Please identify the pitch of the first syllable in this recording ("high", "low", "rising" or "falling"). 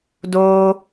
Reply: high